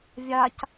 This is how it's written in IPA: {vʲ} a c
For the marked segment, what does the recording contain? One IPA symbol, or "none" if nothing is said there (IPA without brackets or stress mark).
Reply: vʲ